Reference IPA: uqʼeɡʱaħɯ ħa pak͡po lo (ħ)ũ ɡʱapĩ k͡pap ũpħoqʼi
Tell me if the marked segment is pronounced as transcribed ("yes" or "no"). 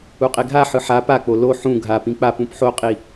yes